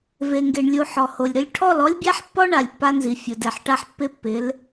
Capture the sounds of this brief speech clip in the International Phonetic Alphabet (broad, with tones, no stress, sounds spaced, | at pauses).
v e˨ ŋ ɡ e˨ ɳ lʲ u˨ ħ ɔ˨ h o˨ lʲ ɾ ʊ˦ lʲ ʈʰ ɔ˦˨ l ɔ˦ lʲ bʲ a˦ ħ pː ɔ˦ ɳ a˨ lʲ pː a˦ n z i˨ fʲ ʊ˨ d ɛ˨ ħ ʈ a˦ ħ pː ɪ˦ pː ɪ˨˦ l